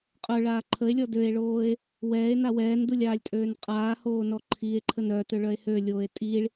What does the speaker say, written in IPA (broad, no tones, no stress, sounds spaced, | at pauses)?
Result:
qʼ œ ɭ aː ǃʰ ə e̯ lʲ ɔ d ø e̯ ɭ oː e̯ | w ɛː e̯ n a w ɛː n d u lʲ aː lʲ tʼ øː n qʼ aː h oː n ɔ ǃʰ iː e̯ ǃʰ ə n œ t ø ɭ œ e̯ h ø lʲ oː e̯ tʼ i ɭ